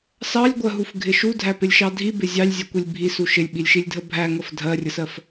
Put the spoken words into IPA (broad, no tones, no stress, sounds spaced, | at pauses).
s ɑ lʲ ɡʷ ɜ ɦ u f ɡʱ ɪ ʃ u dʱ æ p ɪ lʲ ʃ ɑ dʱ i b ɪ zʲ ɑ lʲ zʲ ɜ kʷ i lʲ bʱ i s u ʃ ɪ lʲ ɓ i lʲ ʃ i lʲ dʱ ə bʱ æ ŋ ə f dʱ ɜ rʲ ə s ɜ f